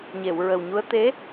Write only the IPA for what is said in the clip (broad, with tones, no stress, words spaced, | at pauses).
ɲe˨˩˨wɹə˨˩wɲu˧˥ə̯ t̪e˧˥